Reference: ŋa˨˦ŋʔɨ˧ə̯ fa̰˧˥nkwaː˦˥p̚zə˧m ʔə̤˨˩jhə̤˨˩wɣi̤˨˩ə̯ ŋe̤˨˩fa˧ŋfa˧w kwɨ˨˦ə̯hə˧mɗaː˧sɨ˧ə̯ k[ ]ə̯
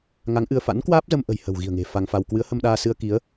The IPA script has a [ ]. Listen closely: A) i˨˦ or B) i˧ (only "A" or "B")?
A